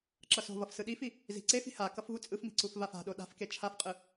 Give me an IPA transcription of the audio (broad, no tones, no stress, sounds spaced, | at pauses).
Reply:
ǁ ʌ s o̤ v ʌ f s ɯ ɗ i f i | z i̤ ǀ e f i̤ h a k ʌ f v u t͡sʼ ɯ f m i̤ ǀ u f v a f a̤ ɗ o ɗ a̤ f k e t͡ʃʰ a f qʼ ɯ